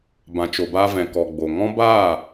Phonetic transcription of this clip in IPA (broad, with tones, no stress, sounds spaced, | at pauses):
b ã˨ t͡ʃ o˨ b a˧ v ɛ̃˨ k ɔ˨ ɡ͡b o˨ ŋ ɔ̃˦ b aː˦˨